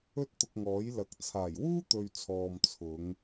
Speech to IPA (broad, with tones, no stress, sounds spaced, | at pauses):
ɵ˥ t̚ t̪ ʊ˧ k̚ ŋ ɔː˨˥ j l ɐ˨˥ k̚ t͡sʰ aː˨˩ j w uː˥ t̪ ɵ˨ ɥ t͡sʰ ɔː˨ m t͡sʰ ʊ˨˧ ŋ